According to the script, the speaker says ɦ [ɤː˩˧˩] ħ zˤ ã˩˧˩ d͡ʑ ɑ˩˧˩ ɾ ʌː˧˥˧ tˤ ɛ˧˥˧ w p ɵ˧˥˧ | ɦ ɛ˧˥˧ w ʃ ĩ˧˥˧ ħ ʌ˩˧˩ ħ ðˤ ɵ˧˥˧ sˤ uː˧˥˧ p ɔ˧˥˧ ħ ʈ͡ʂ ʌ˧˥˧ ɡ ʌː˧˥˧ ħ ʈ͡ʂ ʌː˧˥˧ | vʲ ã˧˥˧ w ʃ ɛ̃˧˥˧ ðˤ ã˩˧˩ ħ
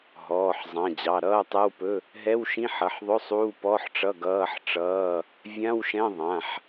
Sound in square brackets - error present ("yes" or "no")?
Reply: yes